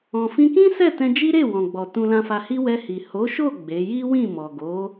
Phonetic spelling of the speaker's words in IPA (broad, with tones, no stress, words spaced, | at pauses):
ɔ̃˨fĩ˧kĩ˦ sɛ˦˨tɛ̃˧d͡ʒi˦ɾe˦˨ wɔ̃˨ɡ͡bɔ˨ tũ˧lã˧fa˧hi˦ wɛ˧hi˨ ho˨˦ʃo˦˨ ɡ͡be˨˦ ji˦wĩ˦˨ mɔ˨ɡo˨˦